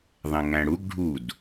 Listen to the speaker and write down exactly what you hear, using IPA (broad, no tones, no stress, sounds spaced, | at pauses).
ðˤ ẽ ŋ æ̃ ɽ u ɡ ɖʱ u d